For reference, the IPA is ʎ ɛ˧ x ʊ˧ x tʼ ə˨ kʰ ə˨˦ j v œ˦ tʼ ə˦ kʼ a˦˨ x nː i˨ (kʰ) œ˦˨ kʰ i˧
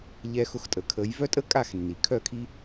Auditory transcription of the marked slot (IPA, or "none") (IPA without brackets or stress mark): kʰ